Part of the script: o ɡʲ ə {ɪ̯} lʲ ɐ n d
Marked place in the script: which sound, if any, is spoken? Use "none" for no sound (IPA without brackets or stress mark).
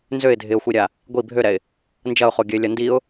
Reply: ɪ̯